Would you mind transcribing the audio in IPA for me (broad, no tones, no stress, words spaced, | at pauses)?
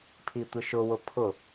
pʰitʷɪʃʊwʊ pʰʊ